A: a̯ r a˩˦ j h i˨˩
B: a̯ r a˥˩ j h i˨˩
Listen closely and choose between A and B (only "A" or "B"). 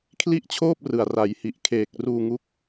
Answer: A